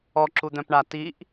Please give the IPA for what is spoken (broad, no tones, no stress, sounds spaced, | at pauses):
ɔ ǁ u d̪ œ̃ p ɳ a t i ʔ